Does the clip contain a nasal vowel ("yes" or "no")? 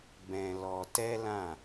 yes